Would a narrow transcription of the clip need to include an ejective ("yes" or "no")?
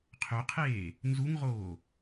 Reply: no